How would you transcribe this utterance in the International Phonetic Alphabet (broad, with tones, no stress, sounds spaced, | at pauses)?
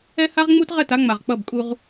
ɛ˦ h a˦ ʁ ŋ͡m u˦ t ʁ ɛ˦˨ t a˦ ŋ͡m a˨ ʁ k͡p ʌ˦˨ b kʼ u˦ ʁ